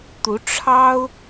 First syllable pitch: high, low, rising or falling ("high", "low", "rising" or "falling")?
rising